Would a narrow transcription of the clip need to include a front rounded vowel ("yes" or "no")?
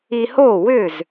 yes